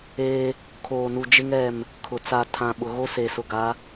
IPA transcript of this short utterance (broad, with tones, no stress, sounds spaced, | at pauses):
eː˦ | kʰ oː˨ n u˨ d͡ʒ ɪ˦ ŋ ɛ˦˨ m | kʰ ʊ˨ t͡s a˨ tʰ ã˨ ɓ ʊ˨ ɣ o˦ s e˨ s ʊ˨ ɡ a˨˦